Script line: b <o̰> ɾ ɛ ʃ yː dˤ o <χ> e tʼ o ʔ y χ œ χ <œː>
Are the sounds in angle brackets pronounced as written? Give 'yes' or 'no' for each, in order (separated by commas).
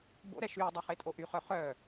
yes, yes, yes